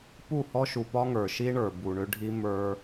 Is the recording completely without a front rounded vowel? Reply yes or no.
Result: no